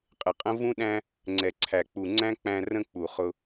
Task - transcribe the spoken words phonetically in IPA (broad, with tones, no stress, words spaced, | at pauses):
qʼɪ˨qʼə̃˦ vũ˦ɗæ̃˦ | ŋ͡ǀɛ˨ǀʰæ˨k͡pu˨ ŋ͡ǀæ̃˦k͡pæ̃˧ rə̃˧k͡pu˨ χʊ˦